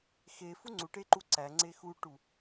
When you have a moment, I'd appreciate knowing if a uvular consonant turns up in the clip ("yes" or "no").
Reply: no